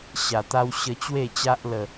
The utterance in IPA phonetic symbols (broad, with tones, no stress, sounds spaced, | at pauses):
ɕ a˨˩ t̪ a˦ w ɕ ə˧ t͡ɕ w e˥˧ t͡ɕ a˦ ʔ l ə˥˧